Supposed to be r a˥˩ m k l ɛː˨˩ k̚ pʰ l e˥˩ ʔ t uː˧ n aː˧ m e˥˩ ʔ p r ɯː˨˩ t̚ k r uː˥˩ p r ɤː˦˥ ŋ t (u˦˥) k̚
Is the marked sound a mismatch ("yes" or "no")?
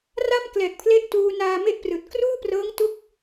no